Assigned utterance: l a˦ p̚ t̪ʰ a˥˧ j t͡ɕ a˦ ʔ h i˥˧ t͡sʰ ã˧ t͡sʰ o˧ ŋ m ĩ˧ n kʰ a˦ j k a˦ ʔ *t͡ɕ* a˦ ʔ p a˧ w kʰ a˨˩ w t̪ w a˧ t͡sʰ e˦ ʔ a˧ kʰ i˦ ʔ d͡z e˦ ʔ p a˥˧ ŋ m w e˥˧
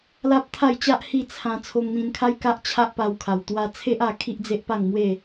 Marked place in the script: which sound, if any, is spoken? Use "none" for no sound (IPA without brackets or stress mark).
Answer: t͡ɕʰ